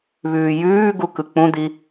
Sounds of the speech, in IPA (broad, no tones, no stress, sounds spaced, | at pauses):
β ʉː j ʉː ɡ u k ɯ k͡p ũ d̪ i